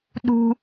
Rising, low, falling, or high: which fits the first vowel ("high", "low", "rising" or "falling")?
high